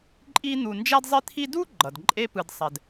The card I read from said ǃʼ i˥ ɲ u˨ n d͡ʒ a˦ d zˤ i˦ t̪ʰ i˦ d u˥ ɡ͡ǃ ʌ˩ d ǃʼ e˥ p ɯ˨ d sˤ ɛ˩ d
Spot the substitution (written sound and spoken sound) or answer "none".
ɲ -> n̪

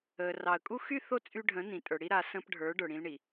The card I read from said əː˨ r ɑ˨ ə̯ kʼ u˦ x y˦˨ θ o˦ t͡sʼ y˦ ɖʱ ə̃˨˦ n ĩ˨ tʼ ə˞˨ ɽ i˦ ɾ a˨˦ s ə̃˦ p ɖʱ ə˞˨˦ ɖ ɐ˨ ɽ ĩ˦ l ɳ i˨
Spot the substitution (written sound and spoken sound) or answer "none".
ɐ˨ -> ə˞˨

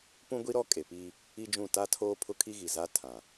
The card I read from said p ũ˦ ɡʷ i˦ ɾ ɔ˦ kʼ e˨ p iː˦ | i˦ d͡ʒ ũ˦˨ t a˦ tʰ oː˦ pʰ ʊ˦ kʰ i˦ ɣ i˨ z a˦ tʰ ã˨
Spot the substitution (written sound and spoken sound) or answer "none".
none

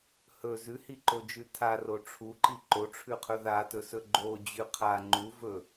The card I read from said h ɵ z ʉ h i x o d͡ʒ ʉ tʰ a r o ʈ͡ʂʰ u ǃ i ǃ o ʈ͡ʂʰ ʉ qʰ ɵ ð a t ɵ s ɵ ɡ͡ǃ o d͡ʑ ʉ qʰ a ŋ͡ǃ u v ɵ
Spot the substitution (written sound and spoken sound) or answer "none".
x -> ǃ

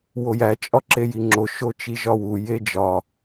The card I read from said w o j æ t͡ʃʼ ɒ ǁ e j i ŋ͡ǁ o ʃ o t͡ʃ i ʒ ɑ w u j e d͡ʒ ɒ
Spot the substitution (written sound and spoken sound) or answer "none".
ɑ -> ɒ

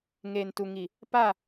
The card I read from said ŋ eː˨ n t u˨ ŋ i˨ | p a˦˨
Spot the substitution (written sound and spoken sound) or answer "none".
none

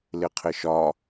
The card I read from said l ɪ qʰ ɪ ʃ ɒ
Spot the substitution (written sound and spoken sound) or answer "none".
none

